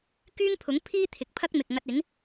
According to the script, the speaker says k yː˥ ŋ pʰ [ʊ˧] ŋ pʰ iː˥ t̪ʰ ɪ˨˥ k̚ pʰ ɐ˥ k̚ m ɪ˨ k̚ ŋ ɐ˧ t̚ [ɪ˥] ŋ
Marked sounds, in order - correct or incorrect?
incorrect, incorrect

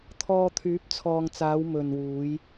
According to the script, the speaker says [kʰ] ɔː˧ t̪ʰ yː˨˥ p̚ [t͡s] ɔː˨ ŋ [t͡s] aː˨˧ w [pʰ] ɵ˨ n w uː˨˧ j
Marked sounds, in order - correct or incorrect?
incorrect, incorrect, correct, incorrect

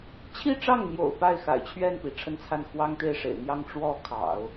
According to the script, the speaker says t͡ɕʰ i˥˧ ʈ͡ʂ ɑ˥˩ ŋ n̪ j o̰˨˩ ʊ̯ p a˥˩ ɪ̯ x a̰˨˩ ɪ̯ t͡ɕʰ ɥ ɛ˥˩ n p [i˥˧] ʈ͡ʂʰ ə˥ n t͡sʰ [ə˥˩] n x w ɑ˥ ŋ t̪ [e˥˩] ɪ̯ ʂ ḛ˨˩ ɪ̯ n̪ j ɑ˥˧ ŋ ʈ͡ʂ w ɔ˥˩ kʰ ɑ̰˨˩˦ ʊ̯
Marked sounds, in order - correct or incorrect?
incorrect, incorrect, correct

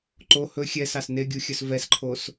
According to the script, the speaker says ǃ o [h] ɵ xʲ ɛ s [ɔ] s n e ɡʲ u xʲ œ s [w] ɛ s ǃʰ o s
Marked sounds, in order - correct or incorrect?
correct, incorrect, incorrect

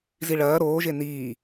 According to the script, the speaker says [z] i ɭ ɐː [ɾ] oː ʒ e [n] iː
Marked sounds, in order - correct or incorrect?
correct, correct, correct

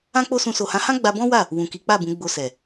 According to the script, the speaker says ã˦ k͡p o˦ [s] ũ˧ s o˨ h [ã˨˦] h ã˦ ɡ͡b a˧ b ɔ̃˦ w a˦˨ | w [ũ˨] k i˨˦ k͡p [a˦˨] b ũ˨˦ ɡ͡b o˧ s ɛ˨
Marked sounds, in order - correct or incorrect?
correct, correct, correct, correct

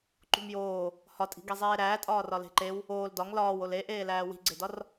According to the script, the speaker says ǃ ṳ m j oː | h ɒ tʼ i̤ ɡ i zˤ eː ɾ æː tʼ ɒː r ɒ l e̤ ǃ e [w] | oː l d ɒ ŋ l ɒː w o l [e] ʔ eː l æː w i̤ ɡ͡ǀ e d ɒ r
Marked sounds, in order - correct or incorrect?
correct, correct

